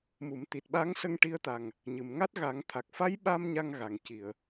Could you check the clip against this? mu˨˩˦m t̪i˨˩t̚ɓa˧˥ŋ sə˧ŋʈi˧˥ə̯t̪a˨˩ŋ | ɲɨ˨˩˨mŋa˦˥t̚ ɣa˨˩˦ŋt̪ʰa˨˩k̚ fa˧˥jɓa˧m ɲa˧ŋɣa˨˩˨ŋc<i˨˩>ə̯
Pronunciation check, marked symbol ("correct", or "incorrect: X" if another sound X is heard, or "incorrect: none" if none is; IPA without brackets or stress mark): incorrect: i˨˩˨